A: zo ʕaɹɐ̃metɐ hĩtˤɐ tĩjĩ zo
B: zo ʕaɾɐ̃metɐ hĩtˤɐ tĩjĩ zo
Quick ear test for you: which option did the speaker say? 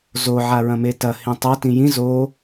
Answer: A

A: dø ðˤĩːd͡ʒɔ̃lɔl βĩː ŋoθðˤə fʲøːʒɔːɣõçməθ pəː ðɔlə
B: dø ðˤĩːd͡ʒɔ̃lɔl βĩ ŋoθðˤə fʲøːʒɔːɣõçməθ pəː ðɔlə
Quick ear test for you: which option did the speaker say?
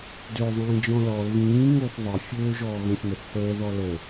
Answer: A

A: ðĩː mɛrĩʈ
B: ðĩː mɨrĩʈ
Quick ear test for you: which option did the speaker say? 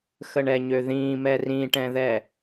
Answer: A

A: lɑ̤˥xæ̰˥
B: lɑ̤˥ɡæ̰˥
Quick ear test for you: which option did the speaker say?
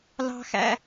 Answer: A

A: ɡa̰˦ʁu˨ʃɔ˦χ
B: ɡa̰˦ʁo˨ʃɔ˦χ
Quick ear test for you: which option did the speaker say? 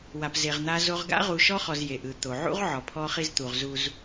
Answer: A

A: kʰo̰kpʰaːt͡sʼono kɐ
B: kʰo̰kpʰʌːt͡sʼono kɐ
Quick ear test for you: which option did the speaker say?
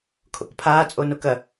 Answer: A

